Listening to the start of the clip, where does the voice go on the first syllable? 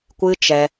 high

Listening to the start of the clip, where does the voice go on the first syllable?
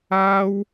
high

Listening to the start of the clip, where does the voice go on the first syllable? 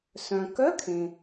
low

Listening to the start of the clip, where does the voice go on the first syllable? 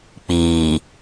low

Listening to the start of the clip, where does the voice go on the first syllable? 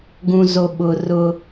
high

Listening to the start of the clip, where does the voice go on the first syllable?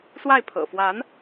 falling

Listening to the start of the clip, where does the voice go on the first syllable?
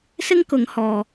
high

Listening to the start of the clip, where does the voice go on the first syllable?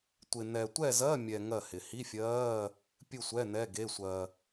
low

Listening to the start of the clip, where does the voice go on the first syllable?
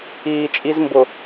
low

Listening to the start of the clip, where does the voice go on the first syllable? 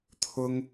high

